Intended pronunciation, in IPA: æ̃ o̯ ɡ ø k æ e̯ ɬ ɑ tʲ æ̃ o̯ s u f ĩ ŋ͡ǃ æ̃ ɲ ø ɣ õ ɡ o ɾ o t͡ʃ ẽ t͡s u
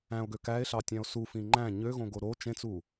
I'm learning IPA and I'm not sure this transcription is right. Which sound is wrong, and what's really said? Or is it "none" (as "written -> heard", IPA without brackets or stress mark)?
none